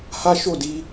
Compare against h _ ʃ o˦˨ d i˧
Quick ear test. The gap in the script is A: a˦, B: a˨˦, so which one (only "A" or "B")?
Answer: A